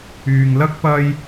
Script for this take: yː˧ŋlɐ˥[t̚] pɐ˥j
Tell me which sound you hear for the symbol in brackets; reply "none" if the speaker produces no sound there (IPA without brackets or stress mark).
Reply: k̚